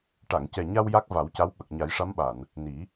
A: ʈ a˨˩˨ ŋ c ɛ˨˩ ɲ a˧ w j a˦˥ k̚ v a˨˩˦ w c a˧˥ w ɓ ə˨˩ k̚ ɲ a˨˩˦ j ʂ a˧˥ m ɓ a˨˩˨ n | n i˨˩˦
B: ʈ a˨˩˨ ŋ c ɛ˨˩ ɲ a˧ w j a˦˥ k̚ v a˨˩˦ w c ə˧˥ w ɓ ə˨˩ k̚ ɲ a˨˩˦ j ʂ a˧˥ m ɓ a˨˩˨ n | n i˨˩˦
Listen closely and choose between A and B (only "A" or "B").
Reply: A